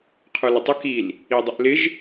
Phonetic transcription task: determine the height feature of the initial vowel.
mid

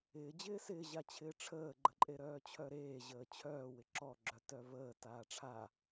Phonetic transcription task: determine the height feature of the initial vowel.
high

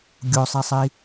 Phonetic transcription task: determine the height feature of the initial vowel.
mid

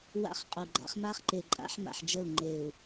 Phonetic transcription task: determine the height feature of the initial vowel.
low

